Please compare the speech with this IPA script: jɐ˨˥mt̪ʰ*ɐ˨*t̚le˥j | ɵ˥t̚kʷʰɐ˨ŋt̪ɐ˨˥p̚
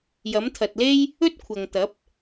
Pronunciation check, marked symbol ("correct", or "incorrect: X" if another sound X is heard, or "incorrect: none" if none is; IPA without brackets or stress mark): correct